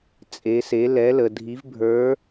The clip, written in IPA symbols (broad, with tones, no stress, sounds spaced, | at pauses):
t͡sʼ e˩˧ s e˩˧ l ɛ˩˧ l ə˩ dʱ i˩˧ v bʱ ə˞˩˧